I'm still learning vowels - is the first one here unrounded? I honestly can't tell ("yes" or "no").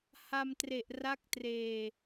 yes